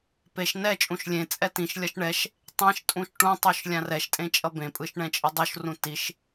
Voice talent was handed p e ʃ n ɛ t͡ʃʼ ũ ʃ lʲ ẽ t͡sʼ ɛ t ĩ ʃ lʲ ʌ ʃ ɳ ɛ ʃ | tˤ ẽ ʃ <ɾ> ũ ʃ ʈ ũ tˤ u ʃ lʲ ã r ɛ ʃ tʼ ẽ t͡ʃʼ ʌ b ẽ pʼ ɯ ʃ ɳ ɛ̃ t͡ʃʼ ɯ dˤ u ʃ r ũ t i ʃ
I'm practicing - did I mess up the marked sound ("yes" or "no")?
yes